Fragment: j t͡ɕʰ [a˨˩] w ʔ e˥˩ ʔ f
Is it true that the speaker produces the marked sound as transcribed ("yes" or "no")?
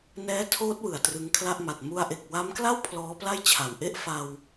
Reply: yes